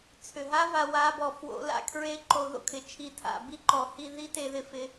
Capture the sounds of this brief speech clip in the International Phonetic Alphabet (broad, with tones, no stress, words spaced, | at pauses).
t͡sʰʏ˨˩ɦa˦˥va˧ wa˦˥bɔ˧ fwo̰˦˥ la̰˧kʰɹe˦˥ ǃo˧ðo̰˦˥kʰɪ˨˩ t͡ʃʰi˨˩tʰa̰˨˩bi˧ǃɔ˨˩ hi˧ ði˦˥te˧ðɪ˧ fɪ˧